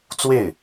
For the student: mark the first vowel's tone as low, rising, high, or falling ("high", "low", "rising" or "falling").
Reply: falling